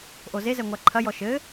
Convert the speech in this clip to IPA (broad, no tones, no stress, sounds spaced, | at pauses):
ʔ o z e z ɛ ŋʷ a ǃʰ ɐ j ɔ ʃ ɘ